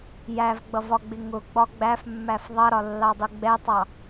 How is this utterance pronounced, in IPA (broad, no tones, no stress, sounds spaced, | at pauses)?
j æ v ɡ͡b ʌ v ɒ ɡ͡b ɪ ŋ ʊ ɡ͡b ɒ ɡ͡b æ f mː æ f ðˤ ʌ ɾ ɒ lː ɑ dˤ u ɡ͡b ɛ tˤ ɑ